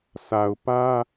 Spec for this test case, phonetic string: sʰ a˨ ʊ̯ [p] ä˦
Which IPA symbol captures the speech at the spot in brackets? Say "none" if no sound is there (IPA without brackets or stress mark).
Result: p